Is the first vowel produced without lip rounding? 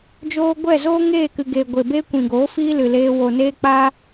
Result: no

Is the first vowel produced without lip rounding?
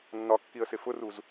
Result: no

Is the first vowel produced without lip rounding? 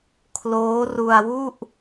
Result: no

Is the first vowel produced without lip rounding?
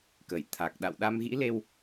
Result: yes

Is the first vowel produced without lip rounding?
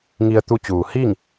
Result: yes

